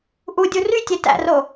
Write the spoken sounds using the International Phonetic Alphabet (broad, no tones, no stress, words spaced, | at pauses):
ʔudʲu rytʲe tæ̰ro